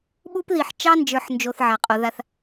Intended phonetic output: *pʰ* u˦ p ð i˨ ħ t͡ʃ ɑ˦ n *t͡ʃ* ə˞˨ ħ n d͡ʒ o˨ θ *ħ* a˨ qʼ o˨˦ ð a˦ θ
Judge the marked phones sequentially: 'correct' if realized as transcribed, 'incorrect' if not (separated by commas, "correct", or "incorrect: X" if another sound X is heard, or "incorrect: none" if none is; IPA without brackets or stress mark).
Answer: incorrect: ɓ, incorrect: d͡ʒ, incorrect: ʕ